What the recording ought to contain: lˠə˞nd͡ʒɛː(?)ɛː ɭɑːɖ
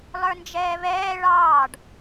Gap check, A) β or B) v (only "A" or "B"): A